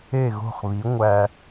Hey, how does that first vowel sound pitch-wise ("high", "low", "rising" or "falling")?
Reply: falling